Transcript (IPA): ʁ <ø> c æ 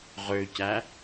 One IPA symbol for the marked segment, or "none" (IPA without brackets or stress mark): ø